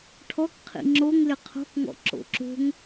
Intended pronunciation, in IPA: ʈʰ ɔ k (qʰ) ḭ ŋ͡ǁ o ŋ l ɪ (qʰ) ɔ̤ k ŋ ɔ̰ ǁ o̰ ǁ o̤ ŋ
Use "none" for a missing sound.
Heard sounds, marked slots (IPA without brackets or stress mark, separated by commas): qʰ, qʰ